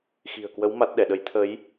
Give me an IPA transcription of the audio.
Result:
x i̤˨˩ ə̯ k w ə˨˦ w m a˦˥ t̚ ɗ ɛ˧˩ ɗ ə˨˦ j t̪ʰ ə˨˦ j

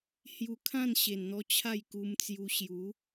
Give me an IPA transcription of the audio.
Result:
h j u˧ kʰ ã˥˧ n ɕ e˨˩ n n̪ ɔ˧ t͡ɕʰ a˥˧ j k u˧ m t͡s j u˧ ɕ j u˨˦

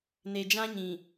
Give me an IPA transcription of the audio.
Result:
n e˨ d͡ʒ ã˦ ɲ ĩ˨

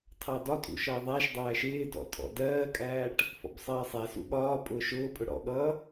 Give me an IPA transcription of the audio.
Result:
tʰ ɑ d ɒ tʼ ṵ ʃ ʌː ðˤ æ ʃ dˤ æː ʃ ɪː d ɔ̰ tʼ ɔ̰ d ɜː kʼ æː ʈ | f ɔ̰ b sˤ ɜː sˤ æ s ṵ ɠ ɒː pʼ ʊː ʃ ʊː pʼ ʊ ɽ ɔ̰ ɠ ʌː

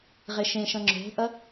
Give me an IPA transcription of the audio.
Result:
ʁ e ʃ ẽ ʃ ɐ̃ ŋ͡ǁ o̤ ʔ ɐ

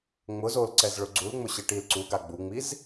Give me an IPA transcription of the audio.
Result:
ŋ͡m ʊ z o l ǀ ɛ z ɭ ʊ ɡ͡ǀ u l ŋ͡m ʊ ɕ ɪ ʈ i l ǀ u ɡ a ɡ͡b u ŋ͡m i z

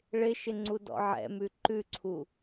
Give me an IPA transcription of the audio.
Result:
ɭ ɪ ʃ ɪ ŋ͡ǀ u d ɔ̰ ʕ ɛ̰ m ʉ ǃ ʉ ǀʰ u

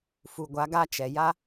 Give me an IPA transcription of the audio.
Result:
f u˨ ɡʷ a˨˦ ɡ a˦ t͡ʃ ɛ˨ j a˦

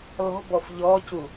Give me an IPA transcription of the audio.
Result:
l ɔ̤ b ɔ f ʎ ɔ c u

